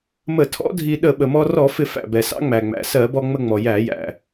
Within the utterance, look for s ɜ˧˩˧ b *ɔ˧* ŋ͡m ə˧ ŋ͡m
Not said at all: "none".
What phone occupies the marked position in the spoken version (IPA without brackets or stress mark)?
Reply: ɔ˧